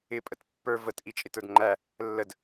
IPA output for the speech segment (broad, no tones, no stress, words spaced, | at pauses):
ɪpʼət pːə˞ vətʔit͡ʃʼɪtə˞d ŋ͡ǃæ | lːəd